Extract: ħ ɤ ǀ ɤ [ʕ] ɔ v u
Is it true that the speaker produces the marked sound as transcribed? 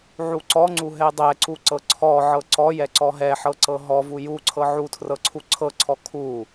no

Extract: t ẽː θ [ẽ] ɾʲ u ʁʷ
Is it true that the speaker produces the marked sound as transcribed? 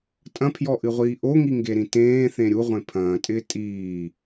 yes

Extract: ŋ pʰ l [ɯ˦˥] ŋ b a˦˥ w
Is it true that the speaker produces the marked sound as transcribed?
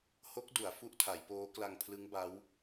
yes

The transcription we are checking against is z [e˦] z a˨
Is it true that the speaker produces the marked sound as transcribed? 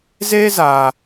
yes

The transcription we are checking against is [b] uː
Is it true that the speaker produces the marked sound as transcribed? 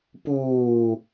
no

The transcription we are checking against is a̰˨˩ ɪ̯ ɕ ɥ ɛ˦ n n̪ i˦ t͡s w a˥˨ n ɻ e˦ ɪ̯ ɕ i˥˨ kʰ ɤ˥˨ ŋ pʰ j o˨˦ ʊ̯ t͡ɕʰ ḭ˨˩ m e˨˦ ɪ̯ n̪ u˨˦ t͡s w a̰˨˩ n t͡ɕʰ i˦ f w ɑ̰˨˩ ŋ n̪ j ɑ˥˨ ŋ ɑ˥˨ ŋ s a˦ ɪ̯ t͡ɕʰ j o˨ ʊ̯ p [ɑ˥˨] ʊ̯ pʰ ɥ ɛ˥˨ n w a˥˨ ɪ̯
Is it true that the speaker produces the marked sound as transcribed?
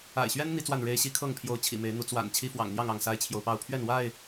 yes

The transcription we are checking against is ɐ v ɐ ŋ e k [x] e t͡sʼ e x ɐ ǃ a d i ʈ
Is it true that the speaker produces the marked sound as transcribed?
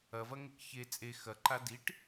no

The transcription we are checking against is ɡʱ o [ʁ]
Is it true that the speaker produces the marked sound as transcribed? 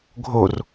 no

